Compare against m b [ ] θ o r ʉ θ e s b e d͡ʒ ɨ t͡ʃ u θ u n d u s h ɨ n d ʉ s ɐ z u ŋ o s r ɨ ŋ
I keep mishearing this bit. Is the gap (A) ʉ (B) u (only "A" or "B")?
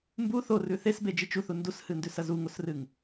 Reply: B